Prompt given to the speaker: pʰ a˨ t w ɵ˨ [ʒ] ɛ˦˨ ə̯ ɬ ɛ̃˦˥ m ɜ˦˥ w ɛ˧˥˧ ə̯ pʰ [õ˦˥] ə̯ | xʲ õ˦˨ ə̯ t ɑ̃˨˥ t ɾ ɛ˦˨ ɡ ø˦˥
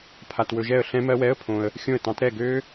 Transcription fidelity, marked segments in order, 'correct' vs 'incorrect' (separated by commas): correct, incorrect